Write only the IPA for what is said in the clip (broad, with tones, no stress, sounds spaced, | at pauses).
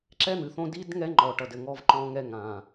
ǁ ɛ˦ n̪ ɨ˨ θ õ˦ d i˦ d ŋ ɛ˦ ŋ͡ǃ ɔ˨ ʈ ʌ˨ d ɘ˨ ŋ ɔ˦ v ǃ ɔ̃˦ ŋ ɛ˦ ŋ ã˨